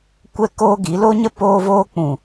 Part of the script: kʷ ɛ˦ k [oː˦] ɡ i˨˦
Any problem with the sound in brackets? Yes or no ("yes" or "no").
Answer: no